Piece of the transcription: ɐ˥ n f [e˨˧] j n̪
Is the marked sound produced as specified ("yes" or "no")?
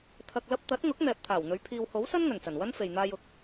no